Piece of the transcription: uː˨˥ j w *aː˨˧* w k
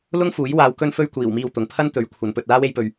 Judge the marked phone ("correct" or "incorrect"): correct